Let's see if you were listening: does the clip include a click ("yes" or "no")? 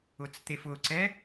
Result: yes